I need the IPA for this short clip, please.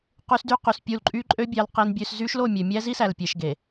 q y˦ s d y˦ q y˨ s pʲ u˦˨ l ǃʼ y˦ ǃʼ ø˦ bʲ ɑ˦ l q e˦ n bʲ ø˦ s z y˦ ʃ l o˦˨ mʲ ø˨ mʲ æ˦ z i˦ s æ˨ l pʲ e˨ ʃ ɡ e˨

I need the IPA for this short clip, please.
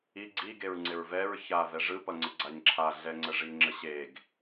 i ɡ͡ǀ i ɡ e ɹ ŋ͡ǀ ɪ ɹ v ɛ ɹ ç a v ɛ ʐ ɯ p ʌ ŋ͡ǀ ɪ ɡ͡ǀ a ɲ ǁʰ a ɮ ɛ ŋ͡ǀ ə ʐ i ŋ͡ǁ ə ɕ e ɡ

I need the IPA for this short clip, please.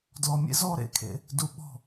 d l ɔ˨ mʲ ḛ˦ z ɔ˦ ɾ ḛ˦˨ kʰ ḛ˦ | d u˨ ɓ ɔ̤˦˨

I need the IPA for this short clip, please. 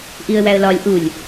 ʔ i ə̯ w æ ə̯ l ɒ lʲ ʔ u lʲ

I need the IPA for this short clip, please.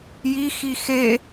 j i x i x e

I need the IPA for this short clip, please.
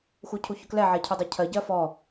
x u cʰ u ç ʊ k l ɛ ʕ ɛ cʰ u dˤ ɛ cʰ ɜ ɟ ɜ f ɔ

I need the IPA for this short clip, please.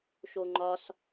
ʃ o ŋ͡ǃ ɒ s

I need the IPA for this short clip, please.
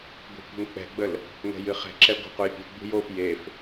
ɡʷ ɛ̤ kʷ ə̤ ŋ k͡p ɛ̤ ɡ͡b ə l | ŋ ɛ̤ j ɨ χ ɛ̤ ǁ ɛ ɡʷ ə̤ q u j pʲ ṳ ɡ͡b ṳ j o f j e f

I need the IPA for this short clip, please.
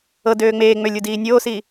ɤ d øː ŋ͡m eː ŋ͡m ø lʲ u d iː nʲ oː s i

